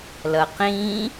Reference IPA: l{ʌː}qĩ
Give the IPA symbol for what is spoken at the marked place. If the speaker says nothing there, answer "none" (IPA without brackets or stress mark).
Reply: ʌ